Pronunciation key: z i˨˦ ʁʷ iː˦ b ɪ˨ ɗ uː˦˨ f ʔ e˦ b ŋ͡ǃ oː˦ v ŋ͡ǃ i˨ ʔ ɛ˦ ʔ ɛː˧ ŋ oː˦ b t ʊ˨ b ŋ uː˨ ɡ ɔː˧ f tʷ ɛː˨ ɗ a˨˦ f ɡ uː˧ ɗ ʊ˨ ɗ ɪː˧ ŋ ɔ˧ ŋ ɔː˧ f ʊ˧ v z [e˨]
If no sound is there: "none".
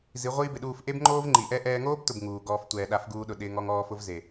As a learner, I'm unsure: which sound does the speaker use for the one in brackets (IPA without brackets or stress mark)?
e˨